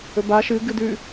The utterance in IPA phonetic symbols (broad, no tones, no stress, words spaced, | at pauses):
ɵba ʃɨ ɡɨdʉ